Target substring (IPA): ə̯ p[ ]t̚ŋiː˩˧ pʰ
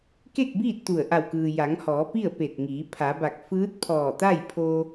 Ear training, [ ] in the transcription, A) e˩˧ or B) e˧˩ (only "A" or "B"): B